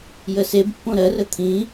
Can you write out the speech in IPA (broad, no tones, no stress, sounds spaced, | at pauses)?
j ə s e b pː õ ɾ ɜ r ə t̪ʰ ĩ